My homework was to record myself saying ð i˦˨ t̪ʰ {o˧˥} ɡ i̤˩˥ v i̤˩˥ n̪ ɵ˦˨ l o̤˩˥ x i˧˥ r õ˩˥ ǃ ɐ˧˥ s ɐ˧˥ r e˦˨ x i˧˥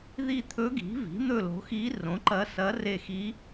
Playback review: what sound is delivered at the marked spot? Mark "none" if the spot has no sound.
ɵ˧˥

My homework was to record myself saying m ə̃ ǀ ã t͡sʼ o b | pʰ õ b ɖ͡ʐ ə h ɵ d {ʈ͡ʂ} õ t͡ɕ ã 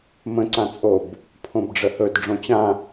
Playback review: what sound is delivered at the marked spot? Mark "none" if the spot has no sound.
ɖ͡ʐ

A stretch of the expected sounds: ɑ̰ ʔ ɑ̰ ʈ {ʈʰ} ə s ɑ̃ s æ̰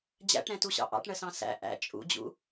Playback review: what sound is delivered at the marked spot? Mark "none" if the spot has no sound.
ɳ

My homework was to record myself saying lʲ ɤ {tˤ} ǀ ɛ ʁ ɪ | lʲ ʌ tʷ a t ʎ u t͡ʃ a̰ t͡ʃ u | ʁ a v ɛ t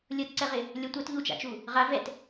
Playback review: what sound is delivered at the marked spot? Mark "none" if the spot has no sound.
t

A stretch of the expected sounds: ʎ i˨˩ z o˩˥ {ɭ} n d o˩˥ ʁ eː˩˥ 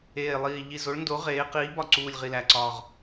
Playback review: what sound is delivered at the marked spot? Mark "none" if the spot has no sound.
ɭ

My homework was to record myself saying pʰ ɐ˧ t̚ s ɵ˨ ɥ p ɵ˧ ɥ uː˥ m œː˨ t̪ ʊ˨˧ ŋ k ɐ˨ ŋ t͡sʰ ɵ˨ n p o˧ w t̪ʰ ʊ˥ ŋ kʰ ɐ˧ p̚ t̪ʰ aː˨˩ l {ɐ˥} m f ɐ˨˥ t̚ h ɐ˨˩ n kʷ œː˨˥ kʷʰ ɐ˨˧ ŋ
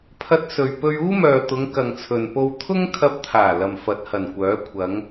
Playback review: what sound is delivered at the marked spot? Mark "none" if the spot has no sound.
ɐ˨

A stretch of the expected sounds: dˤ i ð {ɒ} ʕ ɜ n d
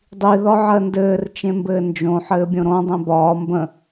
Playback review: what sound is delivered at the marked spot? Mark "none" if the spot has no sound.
ɒ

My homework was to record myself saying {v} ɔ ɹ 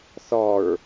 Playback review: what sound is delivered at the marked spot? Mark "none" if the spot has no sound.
θ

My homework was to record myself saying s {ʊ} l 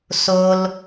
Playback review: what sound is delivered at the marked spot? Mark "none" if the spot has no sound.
ʊ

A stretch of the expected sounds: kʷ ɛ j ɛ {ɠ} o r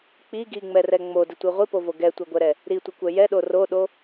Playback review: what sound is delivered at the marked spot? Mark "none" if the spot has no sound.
ɗ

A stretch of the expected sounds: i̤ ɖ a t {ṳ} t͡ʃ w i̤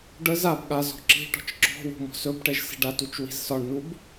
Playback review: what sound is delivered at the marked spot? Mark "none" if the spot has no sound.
u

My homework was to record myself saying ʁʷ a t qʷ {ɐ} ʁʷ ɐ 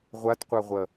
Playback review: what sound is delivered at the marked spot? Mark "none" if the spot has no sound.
a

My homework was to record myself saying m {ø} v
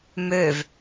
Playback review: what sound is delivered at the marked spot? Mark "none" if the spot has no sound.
ø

